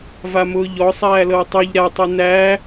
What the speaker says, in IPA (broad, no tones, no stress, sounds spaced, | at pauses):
v a m ʊː ʎ ɔ sˤ æː l ɤ w tˤ y ʎ ɾ a tˤ u n æ